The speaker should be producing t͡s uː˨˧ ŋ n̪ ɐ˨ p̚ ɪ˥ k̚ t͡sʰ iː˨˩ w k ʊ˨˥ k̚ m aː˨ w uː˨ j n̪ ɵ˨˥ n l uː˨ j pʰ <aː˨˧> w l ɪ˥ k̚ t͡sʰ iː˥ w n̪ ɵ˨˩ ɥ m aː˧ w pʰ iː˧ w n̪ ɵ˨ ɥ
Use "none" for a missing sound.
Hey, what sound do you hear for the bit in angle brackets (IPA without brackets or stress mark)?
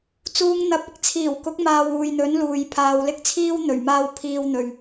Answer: aː˨